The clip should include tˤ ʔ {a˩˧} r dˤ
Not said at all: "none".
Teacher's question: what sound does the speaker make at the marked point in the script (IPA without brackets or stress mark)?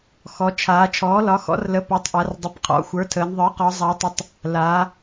a˩˧